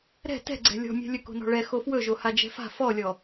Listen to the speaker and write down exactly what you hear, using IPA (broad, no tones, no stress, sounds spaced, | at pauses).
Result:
ɾ ɛ̤ t ɛ̤ ɡ͡ǀ ɛ̤ lʲ ɔ̤ mʲ ɛ̤ lʲ ɵ k o̤ n ɔ̤ ɭ ɛ x o f w ɵ ʒ o h a d͡ʒ ɛ̤ f a̤ f ɔ lʲ ɔ